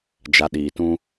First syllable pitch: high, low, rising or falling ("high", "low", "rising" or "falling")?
low